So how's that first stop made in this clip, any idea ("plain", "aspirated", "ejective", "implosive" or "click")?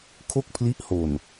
aspirated